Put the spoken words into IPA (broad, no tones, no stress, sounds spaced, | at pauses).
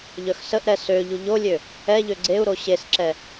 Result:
ʎ œ x s ə ʔ ɾ ɛ s ø ʎ u ʎ o lʲ ø | ɛ ʎ ø ɡ͡ǀ e u̯ ɾ o ɕ e s ǁ ɛ